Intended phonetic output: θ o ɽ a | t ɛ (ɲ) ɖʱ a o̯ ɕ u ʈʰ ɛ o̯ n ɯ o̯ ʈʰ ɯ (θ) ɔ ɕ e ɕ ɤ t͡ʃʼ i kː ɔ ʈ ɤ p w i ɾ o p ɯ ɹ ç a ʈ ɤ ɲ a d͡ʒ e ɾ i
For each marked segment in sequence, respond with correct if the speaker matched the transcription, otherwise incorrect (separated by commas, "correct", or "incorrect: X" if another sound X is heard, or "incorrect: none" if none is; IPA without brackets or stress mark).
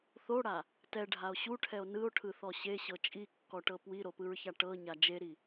incorrect: none, correct